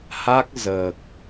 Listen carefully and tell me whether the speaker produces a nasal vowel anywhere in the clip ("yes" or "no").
no